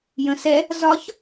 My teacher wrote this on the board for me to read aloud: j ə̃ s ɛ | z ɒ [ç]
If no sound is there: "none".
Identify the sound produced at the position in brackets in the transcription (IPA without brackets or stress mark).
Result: ç